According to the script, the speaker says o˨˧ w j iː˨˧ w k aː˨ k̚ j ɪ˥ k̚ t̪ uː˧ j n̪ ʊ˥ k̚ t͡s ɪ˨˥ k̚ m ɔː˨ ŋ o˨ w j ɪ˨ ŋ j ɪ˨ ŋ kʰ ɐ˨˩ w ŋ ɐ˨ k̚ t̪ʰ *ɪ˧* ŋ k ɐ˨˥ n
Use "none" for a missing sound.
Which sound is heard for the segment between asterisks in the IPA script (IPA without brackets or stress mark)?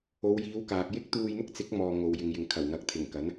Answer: ɪ˨˩